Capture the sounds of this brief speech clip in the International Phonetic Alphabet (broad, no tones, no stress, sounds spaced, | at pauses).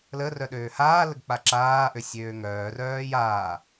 l ə r œ ɗ øː h aː l ə ɡ k͡p a ǁ aː ʔ ø sʲ øː ŋ œː r œː j aː